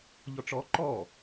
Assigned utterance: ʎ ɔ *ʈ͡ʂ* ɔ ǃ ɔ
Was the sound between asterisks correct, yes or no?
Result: yes